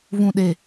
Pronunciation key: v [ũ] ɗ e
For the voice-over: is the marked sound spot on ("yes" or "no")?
yes